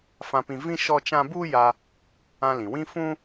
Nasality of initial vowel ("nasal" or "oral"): nasal